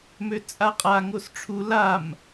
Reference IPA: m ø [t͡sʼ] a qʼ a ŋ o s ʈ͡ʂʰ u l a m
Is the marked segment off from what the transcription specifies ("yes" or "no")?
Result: no